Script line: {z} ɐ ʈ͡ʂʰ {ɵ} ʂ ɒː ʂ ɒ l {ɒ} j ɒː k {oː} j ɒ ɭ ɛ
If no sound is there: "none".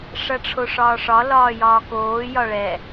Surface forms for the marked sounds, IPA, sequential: ʂ, o, ɒː, oː

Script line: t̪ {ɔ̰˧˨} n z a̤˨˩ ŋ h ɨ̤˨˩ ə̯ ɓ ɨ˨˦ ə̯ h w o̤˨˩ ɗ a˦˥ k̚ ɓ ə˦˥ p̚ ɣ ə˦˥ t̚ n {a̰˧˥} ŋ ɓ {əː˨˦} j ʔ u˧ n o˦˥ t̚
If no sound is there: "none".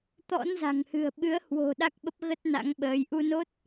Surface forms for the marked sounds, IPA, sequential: ɔ̰˧˥, a̰˧˥, əː˨˦

